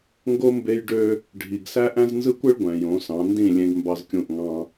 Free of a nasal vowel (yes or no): no